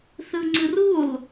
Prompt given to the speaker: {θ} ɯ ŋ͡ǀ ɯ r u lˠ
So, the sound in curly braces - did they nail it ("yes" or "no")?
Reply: yes